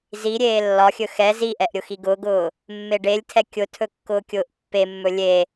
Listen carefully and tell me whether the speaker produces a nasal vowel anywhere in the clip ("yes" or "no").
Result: no